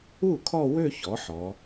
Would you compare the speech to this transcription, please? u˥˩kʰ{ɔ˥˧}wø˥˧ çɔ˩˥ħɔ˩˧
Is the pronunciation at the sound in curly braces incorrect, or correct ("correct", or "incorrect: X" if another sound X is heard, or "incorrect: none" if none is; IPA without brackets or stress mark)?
correct